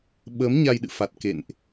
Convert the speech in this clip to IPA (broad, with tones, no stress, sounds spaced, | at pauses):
ɓ əː˨˦ m ɲ a˧ j ɗ ɨ̰˧˨ f a˨˩ t̚ k ḛ˧˨ n ʔ